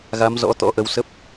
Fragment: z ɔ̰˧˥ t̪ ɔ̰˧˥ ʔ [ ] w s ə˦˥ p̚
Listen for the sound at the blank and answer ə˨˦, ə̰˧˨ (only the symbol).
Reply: ə˨˦